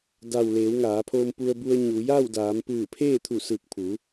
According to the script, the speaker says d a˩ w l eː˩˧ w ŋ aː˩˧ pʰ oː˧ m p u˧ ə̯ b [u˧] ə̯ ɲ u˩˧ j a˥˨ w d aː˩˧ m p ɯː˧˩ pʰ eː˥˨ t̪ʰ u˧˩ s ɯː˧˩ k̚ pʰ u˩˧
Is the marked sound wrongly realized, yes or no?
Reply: no